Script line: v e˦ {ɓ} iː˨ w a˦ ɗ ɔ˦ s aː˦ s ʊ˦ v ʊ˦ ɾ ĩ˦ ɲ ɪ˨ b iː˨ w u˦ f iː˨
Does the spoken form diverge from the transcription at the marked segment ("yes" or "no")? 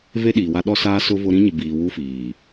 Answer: yes